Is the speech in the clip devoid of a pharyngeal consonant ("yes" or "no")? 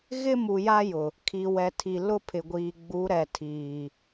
yes